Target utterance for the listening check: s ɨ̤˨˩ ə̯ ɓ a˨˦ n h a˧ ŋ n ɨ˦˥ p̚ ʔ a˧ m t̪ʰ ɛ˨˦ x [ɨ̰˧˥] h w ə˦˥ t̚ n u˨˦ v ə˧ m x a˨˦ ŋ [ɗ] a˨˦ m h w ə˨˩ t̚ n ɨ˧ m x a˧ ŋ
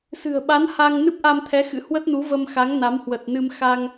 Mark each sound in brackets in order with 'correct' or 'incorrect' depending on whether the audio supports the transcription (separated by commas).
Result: correct, incorrect